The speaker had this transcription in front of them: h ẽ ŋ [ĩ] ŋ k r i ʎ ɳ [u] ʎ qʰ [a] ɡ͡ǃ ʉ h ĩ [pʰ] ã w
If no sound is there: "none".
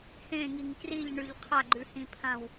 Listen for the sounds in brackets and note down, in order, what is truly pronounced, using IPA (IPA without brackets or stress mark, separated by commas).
i, ʉ, a, pʰ